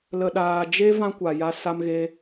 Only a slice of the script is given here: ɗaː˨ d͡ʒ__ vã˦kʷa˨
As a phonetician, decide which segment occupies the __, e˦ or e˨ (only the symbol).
e˦